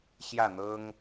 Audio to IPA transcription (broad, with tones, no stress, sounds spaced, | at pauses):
ɕ j ä˥˨ n̪ ɤ˦ ŋ